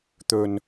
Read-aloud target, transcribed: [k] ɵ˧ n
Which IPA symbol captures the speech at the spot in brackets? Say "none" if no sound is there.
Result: t̪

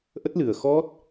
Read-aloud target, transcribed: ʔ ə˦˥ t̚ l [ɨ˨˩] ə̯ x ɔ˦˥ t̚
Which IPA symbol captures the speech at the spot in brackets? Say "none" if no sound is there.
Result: ɨ˨˩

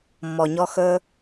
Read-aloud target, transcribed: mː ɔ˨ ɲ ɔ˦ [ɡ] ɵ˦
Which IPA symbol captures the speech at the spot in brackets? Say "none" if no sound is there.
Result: x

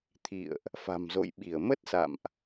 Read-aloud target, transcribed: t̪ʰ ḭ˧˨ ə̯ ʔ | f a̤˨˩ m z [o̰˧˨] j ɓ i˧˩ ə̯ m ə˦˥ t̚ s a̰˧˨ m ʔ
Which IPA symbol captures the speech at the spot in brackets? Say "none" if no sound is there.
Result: o̰˧˨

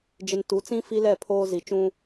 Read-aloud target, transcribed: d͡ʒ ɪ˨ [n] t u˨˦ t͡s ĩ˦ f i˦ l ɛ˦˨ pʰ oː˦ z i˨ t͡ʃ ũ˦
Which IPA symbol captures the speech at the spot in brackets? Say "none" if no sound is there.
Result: n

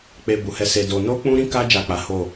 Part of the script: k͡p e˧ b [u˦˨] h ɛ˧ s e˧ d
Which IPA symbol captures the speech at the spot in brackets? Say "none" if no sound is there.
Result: u˨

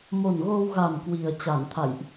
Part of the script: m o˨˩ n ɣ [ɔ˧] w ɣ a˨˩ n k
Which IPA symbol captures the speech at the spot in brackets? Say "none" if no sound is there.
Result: o˧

